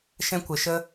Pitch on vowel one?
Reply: high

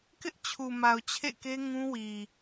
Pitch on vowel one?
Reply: high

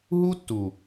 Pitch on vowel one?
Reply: high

